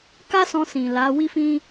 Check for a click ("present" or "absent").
absent